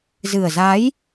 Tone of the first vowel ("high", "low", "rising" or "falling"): low